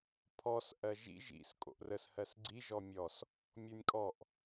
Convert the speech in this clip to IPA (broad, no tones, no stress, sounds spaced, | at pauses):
pʰ ɔ s ʔ ɜ ʒ ḭ ʒ ḭ s kʼ o̰ ʔ r ə s h ɜ s ɡ͡ǀ i ʒ ɔ mʲ ɔ s | mʲ o nʲ kʼ ɔ ʔ